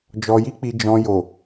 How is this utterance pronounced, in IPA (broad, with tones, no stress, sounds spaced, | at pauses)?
d͡ʒ ɔ˧ j i˦ k͡p i˧ d͡ʒ ɔ̃˧ j o˨